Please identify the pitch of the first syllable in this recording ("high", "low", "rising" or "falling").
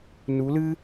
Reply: rising